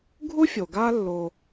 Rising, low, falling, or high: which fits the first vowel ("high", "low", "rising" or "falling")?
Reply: high